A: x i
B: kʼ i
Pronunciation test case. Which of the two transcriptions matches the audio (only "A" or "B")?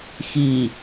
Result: A